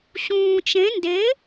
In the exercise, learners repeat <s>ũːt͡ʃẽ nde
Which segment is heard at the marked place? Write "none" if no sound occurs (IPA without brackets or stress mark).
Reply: ɕ